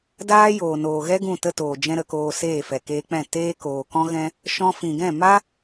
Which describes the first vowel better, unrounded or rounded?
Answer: unrounded